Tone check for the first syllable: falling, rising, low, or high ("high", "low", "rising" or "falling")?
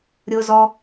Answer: high